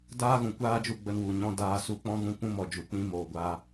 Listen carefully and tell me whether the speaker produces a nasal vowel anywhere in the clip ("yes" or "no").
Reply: yes